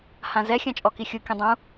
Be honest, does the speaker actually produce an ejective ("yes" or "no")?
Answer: yes